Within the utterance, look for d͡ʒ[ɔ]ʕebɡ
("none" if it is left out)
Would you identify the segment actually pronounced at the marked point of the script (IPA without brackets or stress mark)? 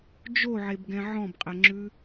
o